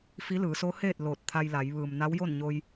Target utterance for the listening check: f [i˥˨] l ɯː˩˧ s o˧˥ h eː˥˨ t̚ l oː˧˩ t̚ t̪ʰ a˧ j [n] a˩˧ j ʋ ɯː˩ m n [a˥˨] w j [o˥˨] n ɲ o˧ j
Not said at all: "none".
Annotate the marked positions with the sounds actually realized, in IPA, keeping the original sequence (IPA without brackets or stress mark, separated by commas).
i˧˥, l, a˧˥, o˥˨